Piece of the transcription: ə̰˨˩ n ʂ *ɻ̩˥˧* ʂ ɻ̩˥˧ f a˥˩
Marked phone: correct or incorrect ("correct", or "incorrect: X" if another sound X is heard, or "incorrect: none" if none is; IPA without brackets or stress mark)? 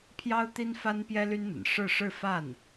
correct